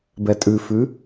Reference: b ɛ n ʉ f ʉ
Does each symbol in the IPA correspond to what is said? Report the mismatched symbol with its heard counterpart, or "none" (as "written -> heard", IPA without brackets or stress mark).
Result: n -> tʼ